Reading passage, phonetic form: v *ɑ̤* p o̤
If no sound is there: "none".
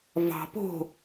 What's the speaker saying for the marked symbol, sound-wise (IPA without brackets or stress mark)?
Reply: ɑ̤